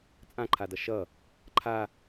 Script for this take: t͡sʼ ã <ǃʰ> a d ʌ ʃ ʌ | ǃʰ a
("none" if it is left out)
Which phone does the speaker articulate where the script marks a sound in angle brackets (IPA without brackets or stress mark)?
ǃʰ